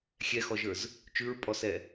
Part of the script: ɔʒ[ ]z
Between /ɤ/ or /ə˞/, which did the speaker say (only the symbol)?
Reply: ə˞